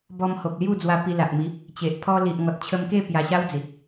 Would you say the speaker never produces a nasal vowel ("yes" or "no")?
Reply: yes